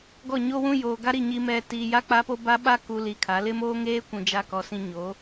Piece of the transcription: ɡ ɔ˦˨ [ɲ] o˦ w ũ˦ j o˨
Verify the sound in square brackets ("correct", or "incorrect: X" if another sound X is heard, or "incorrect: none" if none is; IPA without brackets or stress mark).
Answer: correct